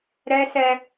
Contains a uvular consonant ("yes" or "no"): no